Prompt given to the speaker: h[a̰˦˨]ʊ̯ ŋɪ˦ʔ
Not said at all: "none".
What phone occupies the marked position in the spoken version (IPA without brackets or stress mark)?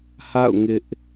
a̰˦˨